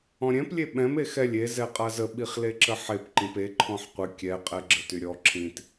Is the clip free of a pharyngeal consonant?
no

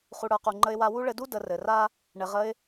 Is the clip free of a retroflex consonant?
no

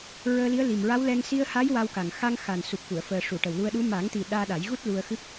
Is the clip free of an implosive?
no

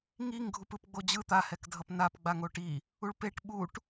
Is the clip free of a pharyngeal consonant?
yes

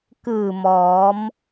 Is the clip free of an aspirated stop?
yes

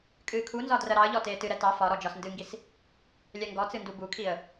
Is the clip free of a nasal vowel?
yes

